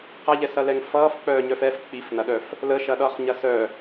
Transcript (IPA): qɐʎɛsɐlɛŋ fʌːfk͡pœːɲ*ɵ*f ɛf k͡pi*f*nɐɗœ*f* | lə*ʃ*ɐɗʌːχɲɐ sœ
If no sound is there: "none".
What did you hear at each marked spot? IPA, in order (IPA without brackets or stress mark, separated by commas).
œ, f, f, ʃ